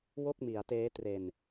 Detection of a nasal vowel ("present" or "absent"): absent